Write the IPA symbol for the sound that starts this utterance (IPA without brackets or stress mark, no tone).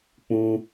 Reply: k͡p